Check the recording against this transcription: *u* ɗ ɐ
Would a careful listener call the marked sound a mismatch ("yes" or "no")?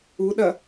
no